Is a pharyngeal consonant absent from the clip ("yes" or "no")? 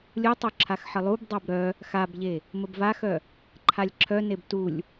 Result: no